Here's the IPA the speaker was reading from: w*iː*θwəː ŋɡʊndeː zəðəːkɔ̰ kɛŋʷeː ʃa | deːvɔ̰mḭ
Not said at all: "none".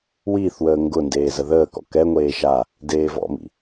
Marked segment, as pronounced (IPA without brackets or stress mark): iː